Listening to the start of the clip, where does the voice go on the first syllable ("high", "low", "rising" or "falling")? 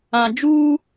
low